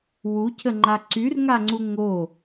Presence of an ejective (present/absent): absent